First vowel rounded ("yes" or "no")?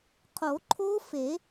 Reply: yes